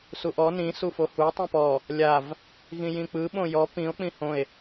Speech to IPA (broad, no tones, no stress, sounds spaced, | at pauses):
s u ʔ ɔ n ĩ s u f o h u tˤ ĩ p ɔ | lʲ a v | ɣ ĩ j ĩ k͡p ɯ ɓ õ j ɔ p ĩ o̯ k͡p ĩ h õ e̯